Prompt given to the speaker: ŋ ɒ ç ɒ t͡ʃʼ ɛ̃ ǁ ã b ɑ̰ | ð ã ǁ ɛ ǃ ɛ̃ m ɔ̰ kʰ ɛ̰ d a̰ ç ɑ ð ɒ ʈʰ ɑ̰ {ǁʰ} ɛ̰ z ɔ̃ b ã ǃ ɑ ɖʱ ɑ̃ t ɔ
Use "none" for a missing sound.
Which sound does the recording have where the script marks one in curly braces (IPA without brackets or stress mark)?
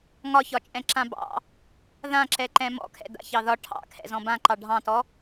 kʰ